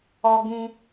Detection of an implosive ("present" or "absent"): absent